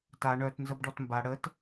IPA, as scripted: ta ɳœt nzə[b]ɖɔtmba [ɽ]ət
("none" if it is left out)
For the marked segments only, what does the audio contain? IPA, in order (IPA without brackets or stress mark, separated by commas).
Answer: b, ɽ